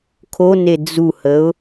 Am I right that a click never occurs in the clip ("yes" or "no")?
yes